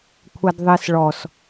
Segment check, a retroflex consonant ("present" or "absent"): present